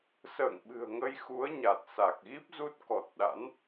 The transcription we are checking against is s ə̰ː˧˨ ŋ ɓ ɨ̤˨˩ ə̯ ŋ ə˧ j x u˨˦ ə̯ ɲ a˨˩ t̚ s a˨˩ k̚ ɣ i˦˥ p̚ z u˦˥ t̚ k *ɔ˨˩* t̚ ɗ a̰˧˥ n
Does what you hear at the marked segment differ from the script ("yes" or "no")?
no